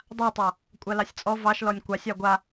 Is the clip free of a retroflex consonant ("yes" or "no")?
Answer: yes